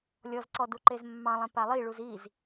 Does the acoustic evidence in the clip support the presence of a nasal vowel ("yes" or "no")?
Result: yes